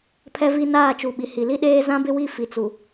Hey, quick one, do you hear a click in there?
no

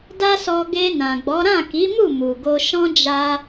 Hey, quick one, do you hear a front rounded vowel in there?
no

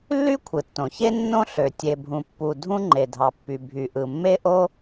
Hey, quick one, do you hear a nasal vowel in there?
yes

